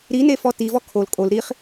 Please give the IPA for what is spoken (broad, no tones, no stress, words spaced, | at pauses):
ɾinefɔ tivɔ kʰol kʼol ɾiχ